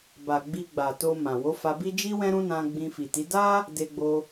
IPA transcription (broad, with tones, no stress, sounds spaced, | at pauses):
b a˨ ɡ͡b i˧ ɡ͡b a˨ t o˧ m ã˨ w o˨˦ f a˧ b i˦ d͡ʒ i˦ w ɛ̃˦ ɾ ũ˦ n ã˧ ɡ͡b ĩ˧ f i˨ t i˨˦ d a˦ | d e˧ ɡ͡b o˧